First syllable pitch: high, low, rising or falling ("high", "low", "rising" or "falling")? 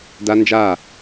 high